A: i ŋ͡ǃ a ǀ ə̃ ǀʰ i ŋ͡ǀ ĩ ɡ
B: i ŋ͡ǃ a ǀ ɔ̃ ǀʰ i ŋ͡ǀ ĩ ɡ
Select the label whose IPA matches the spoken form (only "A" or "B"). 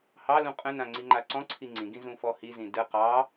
B